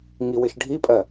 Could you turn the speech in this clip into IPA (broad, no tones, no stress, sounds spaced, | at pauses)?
ŋ i w ɪ ʃ ɖʱ i pʼ ɜ